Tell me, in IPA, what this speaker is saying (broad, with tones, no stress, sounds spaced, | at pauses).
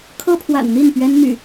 kʰ ɤ˦ pʰ w a̰˨˩ n n̪ i˥˨ n p ɥ ɛ˦ n n̪ y̰˨˩